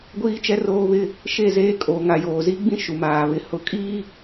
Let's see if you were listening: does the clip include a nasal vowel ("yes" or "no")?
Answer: yes